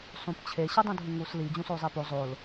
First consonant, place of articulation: alveolar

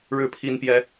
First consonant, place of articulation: retroflex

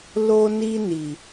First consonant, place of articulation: alveolar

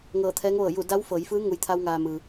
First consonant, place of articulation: velar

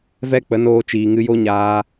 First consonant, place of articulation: labial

